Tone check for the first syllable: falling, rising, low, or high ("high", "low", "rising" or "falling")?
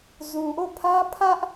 low